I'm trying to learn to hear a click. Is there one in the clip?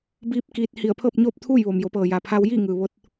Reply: no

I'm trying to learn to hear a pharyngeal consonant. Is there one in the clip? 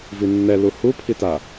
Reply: no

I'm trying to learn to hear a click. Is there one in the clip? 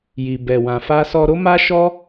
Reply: no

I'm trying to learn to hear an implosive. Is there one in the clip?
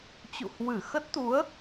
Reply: no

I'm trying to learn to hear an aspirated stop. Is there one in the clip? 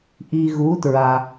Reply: no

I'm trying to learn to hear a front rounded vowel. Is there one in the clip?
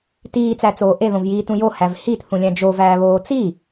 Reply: no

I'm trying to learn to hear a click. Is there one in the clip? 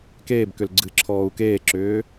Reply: yes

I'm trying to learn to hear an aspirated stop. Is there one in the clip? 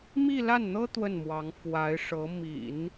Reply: no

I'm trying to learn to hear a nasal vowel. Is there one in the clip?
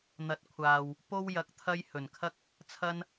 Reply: no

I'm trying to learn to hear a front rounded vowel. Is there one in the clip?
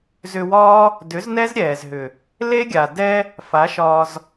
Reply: yes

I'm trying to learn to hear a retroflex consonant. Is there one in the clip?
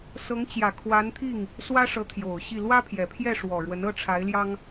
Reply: yes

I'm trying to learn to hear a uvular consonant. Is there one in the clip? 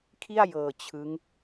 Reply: no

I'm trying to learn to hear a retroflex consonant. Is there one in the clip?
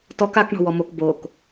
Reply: yes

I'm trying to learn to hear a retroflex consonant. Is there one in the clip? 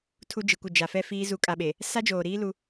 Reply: no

